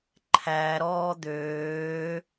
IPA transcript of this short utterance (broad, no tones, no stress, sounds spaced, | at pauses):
ǃʰ æ ɾ ɔː d̪ øː